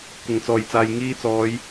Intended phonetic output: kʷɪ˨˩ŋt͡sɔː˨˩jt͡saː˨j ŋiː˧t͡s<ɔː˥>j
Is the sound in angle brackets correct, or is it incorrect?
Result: incorrect